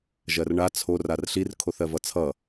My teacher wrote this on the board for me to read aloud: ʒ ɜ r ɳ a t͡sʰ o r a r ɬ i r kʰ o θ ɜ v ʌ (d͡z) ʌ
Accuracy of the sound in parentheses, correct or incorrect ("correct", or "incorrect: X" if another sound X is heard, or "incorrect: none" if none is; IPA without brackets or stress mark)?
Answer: incorrect: t͡sʰ